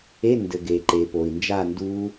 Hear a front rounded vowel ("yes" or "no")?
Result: no